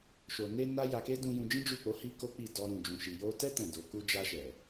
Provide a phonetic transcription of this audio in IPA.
ʃ o˨ n e˧ n a˦ j a˧ k e˦ d ũ˧ j ũ˧ d͡ʒ ĩ˦ d͡ʒ u˦˨ k͡p o˨˦ h i˦ k o˦ k͡p i˦˨ d ɔ˧ ɾ ũ˨ d͡ʒ ũ˨ ʃ i˨ j o˧ t ɛ˦ t ɛ̃˦˨ d o˨˦ k u˧ d͡ʒ a˧ ʃ ɛ˨

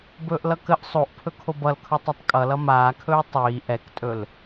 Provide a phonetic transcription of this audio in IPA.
b ɵː ʔ l ʌ k ə ʔ sˤ o ʔ pʰ ɵ kʰ o b ʌ l kʰ ɵ tˤ ʌ tˤ kʼ ʌ l ʌ m aː kʰ ɵː tˤ iː ʔ ɛ k tʼ ɵ l

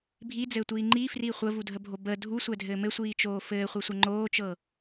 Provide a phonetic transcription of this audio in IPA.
bʱ i d͡z ɘː tʷ iː ŋ͡ǃ i f r i χʷ ə v u dʱ ə bʱ o b ə dʱ u sʷ ɛ dʱ ɘː m ɘ sʷ iː t͡ʃ oː f ɘː χʷ ɛ sʷ ə ŋ͡ǃ oː t͡ʃ ɤː

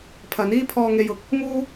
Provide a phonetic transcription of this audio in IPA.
pʰ ɐ˨˥ n iː˥ pʰ ɔː˧ ŋ e˧ j ʊ˨ k̚ | ŋ uː˥

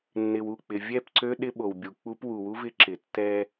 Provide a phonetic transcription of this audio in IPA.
nː ɪ˨ w u˦˨ k͡p ɪ˨ vʲ ɛ˦˨ p ǀ ø˦ ɗ ɪ˦ ɓ o˨ w bʲ u˨ k͡p u˦ p w u˨ w u˦ v ɪ˦ ǁ ɪ˨ tː ɛ˦

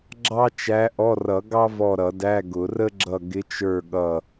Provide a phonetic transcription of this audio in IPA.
ɡ͡ǁ ɑ˥ t͡ʃ æ˧˥ ʔ ɔ˧˥˧ r ʌ˨˩˦ ɡ ɑ˥ v ɔ˦˨ ɾ ʌ˨˩˦ d æ˧˥˧ ɡ ʊ˨˩˦ r ə˥ ɡ͡ǁ ʌ˦˨ ɡ ɪ˧˥ t͡ʃ ə˞˦˨ ɠ ʌ˦˨

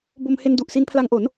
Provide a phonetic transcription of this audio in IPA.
b o˧ m h e˧ n d u˨˩ ʔ s i˧ n pʰ l a˧ ŋ ʔ o˩˦ n

